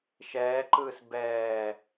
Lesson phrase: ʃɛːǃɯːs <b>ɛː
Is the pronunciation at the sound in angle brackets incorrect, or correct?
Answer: correct